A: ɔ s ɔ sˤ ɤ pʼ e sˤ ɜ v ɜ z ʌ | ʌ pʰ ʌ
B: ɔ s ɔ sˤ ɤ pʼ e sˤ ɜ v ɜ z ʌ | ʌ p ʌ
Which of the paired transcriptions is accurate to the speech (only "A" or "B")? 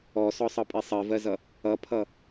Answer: A